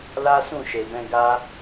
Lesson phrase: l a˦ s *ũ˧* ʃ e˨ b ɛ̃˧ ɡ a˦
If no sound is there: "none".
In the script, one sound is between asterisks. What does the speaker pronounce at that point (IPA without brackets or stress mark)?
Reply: ũ˦˨